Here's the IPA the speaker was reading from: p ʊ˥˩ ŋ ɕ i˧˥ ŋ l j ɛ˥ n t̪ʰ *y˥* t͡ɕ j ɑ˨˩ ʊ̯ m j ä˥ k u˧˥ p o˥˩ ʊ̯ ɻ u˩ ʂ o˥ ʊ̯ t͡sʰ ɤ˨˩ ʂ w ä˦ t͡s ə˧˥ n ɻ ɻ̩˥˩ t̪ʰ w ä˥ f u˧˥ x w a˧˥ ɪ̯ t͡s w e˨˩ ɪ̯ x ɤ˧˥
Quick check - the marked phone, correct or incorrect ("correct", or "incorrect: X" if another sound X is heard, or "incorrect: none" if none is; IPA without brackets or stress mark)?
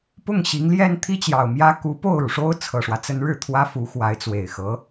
incorrect: i˥